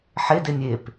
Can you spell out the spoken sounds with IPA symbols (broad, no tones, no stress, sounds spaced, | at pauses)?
ħ e d e nʲ e p